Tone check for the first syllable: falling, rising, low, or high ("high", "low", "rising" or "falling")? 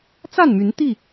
falling